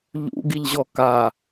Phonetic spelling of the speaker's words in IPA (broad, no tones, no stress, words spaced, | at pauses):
ʎṵɡiʎʑɔ ka